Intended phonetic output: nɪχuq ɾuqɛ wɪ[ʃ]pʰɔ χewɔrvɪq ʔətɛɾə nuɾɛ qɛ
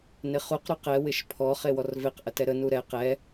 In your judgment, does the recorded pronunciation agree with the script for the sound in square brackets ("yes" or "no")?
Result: yes